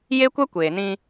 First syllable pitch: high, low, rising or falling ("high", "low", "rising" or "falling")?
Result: high